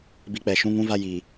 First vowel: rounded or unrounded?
unrounded